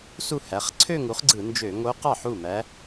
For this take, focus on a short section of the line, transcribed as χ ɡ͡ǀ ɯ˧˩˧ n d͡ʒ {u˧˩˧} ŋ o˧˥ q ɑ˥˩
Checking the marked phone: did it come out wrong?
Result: yes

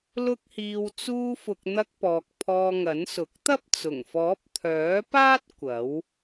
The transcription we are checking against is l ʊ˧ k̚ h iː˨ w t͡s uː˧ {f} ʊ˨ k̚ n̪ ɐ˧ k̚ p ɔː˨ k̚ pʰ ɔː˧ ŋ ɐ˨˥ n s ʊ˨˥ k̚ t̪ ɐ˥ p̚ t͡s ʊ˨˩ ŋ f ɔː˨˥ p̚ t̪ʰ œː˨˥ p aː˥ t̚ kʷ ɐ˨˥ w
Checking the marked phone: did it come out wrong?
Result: no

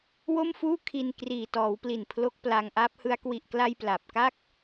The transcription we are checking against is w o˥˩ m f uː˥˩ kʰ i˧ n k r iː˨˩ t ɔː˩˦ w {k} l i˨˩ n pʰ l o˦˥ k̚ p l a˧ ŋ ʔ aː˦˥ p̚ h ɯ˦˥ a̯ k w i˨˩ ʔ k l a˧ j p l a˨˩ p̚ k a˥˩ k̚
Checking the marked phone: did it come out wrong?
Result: yes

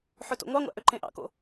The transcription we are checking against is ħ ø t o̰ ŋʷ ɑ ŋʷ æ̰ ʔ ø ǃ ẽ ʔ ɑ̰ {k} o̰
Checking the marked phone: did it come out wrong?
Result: no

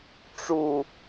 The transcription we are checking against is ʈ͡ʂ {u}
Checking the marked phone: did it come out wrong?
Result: no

